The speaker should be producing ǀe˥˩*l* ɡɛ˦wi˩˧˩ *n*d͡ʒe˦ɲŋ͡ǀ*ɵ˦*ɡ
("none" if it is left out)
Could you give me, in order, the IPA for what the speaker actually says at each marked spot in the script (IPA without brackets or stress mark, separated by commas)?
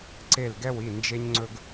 l, n, ɵ˦